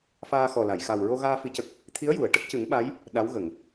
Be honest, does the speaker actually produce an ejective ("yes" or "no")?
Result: no